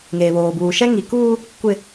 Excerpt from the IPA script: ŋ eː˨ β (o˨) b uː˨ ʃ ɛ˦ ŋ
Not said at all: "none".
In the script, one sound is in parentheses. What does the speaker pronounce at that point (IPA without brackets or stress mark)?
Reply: oː˨